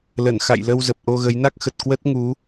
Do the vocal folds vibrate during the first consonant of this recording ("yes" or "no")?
yes